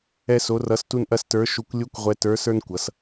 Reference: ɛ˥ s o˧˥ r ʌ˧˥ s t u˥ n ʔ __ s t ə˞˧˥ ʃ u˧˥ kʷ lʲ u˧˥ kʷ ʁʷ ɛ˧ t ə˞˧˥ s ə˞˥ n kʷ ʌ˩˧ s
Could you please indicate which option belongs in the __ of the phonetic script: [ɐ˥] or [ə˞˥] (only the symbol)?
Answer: ɐ˥